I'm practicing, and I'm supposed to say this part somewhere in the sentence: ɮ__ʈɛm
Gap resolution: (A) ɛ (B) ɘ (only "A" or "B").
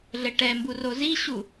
B